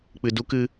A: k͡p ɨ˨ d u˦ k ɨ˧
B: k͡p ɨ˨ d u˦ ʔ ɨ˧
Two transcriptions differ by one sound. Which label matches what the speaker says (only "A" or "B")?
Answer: A